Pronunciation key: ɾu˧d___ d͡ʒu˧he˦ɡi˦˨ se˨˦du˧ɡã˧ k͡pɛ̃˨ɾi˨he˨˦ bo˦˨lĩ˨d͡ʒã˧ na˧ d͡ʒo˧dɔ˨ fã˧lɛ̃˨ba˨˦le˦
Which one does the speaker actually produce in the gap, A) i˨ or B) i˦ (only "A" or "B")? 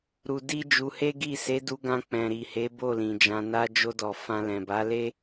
B